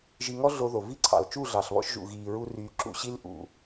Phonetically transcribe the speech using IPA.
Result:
ʒ i˧ ŋ ɔ˦ ɮ o˧ ð o˨ v i˦ ǀʰ ɑ̰˨ l t͡ʃ u˦˨ ɮ ɑ˨ ɬ β ɔ̰˧ ʃ ʒ ṵ˨ ɣ iː˨ ɹ u˧ r yː˨ ǁ ṵ˨ ɕ i˧ l ʔ ṵ˨

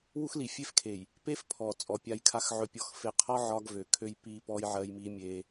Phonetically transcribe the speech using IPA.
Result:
w u˦ x l i˨ fʲ e˦ f kʰ e˨ j | p e˦ f pʰ ɔ˨ t͡sʼ ɔ˨ pʲ a˦ j kʰ a˦ x ʕ ɵ˨ pʲ ɔ˨ x f e˨ qʰ ɒ˦ ʕ ɒ˦ ɡ v ø˨ kʰ ø˦ j p i˦ p ɔ˦ j ʕ ɜ˦ j m i˦ mʲ e˦

